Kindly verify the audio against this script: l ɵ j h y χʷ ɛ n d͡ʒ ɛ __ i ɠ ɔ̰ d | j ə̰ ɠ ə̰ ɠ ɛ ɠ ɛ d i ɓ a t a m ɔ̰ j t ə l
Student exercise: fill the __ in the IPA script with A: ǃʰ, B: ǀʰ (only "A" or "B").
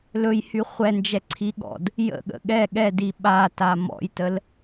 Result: B